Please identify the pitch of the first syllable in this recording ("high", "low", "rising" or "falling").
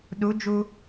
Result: rising